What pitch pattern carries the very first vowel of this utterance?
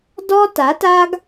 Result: high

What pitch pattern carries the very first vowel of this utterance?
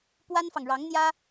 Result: high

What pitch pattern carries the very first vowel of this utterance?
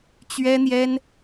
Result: high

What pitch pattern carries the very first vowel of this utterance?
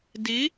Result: rising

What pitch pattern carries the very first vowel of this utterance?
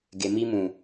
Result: low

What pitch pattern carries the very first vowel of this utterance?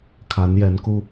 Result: rising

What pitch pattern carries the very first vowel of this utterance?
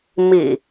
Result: low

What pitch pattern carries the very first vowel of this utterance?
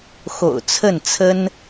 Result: low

